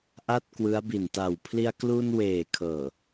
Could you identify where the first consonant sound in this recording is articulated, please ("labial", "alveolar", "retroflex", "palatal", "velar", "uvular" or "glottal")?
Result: glottal